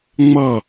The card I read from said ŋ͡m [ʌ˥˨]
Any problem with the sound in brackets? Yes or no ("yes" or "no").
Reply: no